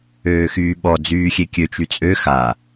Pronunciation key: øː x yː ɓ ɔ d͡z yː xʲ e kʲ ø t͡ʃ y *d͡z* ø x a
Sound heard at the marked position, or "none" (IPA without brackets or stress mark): t͡sʼ